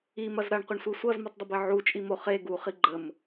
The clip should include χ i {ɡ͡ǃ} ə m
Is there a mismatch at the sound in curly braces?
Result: no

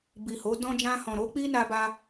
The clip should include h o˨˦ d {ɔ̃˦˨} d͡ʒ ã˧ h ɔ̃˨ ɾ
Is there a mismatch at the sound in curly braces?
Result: yes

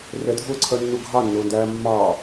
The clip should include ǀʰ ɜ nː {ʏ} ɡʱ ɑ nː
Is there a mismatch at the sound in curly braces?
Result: yes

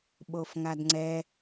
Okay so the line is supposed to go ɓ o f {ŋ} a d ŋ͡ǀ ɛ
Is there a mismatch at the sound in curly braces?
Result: no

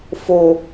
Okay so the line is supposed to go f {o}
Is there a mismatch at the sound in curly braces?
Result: no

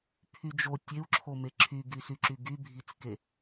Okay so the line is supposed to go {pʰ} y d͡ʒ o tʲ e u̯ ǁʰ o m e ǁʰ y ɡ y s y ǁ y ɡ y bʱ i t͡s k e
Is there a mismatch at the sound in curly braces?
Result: no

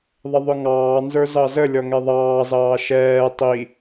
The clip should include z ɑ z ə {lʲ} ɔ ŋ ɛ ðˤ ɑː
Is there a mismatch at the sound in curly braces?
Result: no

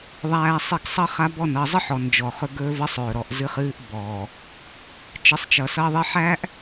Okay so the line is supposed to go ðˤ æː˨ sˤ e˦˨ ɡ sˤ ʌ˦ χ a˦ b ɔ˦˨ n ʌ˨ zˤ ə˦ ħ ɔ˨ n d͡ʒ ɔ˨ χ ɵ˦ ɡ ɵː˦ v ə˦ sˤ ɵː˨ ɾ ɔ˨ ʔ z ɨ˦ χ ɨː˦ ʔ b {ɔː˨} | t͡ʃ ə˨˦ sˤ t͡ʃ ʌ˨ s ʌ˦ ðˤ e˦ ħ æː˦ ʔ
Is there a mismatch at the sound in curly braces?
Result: no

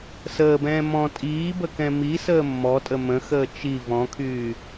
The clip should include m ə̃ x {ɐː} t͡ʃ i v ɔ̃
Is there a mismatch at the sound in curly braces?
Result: yes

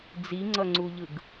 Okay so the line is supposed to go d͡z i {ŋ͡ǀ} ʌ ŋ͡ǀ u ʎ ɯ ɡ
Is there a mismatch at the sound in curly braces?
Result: no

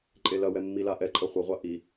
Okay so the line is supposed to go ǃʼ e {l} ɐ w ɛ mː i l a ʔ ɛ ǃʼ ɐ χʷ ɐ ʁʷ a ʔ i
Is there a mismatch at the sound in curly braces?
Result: no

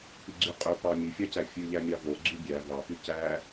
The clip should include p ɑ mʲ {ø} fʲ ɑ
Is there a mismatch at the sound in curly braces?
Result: yes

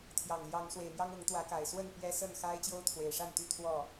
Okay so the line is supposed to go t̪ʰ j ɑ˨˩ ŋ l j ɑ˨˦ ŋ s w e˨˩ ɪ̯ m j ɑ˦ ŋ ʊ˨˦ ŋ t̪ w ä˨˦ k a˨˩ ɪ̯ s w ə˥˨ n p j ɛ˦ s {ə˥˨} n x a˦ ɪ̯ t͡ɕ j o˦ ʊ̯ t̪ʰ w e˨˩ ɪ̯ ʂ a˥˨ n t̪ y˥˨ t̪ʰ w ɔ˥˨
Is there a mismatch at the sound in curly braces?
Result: no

